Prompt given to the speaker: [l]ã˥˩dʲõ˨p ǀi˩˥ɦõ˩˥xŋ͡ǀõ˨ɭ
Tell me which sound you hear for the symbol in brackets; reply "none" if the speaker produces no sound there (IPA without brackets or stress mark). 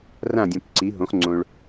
r